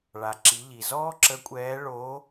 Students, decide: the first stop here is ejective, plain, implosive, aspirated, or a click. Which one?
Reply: click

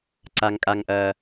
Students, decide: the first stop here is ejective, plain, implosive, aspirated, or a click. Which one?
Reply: click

